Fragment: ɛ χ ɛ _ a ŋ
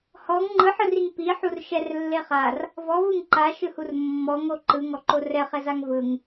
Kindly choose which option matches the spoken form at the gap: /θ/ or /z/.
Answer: z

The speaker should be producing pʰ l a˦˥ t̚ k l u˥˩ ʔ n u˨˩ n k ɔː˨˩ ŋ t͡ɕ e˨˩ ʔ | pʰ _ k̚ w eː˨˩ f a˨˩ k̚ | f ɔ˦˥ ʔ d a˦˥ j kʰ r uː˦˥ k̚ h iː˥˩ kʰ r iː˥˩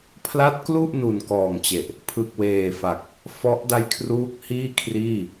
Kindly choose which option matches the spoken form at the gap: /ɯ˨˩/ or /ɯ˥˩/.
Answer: ɯ˨˩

